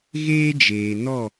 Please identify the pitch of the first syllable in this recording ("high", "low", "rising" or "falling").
high